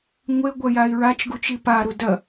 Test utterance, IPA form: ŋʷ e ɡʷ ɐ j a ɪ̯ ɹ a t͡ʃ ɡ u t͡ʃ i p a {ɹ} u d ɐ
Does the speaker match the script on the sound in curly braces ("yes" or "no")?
no